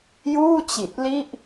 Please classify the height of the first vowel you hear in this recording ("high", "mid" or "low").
high